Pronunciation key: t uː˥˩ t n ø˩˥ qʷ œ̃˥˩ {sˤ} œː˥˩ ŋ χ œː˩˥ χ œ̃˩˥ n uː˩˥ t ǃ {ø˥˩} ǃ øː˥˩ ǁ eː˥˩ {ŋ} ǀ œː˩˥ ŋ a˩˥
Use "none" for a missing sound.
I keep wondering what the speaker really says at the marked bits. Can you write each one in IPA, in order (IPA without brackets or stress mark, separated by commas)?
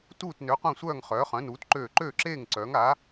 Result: sʷ, øː˥˩, ŋ